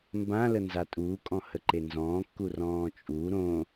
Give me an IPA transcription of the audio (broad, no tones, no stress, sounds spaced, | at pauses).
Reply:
m b ã l ə n z a tʼ uː kʼ ɔ̃ h ə ǃ e n z ɔ̃ː kː u r ɔ̃ː t͡ʃʼ u ɾ õ